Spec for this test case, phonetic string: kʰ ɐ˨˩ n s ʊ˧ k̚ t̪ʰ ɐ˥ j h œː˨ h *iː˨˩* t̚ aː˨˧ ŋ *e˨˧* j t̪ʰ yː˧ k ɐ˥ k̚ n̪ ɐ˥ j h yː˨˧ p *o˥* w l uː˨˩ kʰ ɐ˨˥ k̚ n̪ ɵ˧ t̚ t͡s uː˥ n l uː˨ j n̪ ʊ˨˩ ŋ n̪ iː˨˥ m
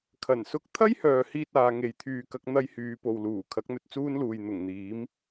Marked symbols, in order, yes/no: no, yes, no

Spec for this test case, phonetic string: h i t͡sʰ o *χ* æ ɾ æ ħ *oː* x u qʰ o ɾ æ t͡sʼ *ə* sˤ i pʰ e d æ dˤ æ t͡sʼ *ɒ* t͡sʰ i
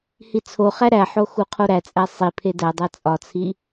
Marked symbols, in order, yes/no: yes, no, no, yes

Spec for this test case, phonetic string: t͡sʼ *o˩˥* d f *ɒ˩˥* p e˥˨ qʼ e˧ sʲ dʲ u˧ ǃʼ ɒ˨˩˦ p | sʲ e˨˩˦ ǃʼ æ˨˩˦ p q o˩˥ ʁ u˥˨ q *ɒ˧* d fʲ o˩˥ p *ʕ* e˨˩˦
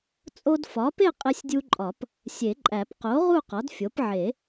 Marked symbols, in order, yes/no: no, yes, no, yes

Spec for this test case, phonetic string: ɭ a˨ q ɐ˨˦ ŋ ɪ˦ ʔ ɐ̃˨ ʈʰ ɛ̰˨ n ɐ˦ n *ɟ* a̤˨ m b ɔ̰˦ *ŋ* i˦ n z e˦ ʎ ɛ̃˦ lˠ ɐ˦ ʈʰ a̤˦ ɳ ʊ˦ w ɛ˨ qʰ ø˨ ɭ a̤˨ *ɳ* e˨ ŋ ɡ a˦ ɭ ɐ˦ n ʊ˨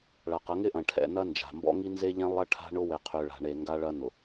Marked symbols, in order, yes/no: no, yes, yes

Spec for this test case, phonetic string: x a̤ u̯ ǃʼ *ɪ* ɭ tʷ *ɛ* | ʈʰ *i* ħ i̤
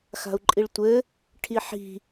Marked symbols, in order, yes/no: no, no, yes

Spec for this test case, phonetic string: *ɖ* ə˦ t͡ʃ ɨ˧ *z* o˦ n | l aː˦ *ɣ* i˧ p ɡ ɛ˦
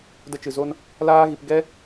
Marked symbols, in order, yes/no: no, yes, yes

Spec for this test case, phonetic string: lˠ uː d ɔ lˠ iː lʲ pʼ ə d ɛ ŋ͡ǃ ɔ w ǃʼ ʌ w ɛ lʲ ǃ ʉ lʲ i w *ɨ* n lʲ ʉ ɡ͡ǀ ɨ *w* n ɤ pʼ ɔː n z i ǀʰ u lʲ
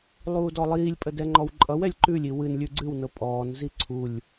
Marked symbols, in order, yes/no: yes, yes

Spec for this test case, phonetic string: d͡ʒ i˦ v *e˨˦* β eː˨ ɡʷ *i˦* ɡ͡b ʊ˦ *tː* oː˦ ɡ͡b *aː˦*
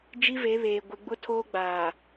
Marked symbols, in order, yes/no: yes, no, no, no

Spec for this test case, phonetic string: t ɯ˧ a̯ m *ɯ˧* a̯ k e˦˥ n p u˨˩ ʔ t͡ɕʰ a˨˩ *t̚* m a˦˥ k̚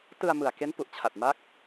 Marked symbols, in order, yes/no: no, yes

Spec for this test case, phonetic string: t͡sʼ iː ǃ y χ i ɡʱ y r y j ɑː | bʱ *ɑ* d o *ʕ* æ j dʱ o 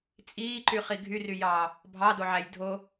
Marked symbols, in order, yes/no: yes, yes

